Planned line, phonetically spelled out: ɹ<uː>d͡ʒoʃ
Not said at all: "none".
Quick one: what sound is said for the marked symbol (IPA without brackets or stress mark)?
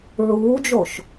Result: uː